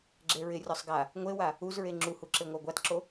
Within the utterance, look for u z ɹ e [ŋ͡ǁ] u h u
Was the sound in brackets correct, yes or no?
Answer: yes